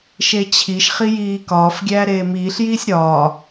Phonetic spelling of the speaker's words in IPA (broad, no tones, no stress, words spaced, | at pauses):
ʃet͡ɕʰiʃ χijiːkɒːf ɡʲæːɾeːmiːɬ jiːsʲɾɒː